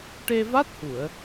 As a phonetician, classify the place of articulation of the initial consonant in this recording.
retroflex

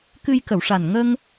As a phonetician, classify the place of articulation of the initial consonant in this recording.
velar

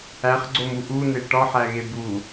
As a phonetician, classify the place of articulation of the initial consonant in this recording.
uvular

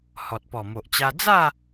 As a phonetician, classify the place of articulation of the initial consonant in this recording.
glottal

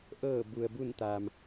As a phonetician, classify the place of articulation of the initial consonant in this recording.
glottal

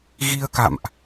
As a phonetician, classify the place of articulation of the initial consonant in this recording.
velar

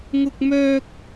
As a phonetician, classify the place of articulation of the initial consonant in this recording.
velar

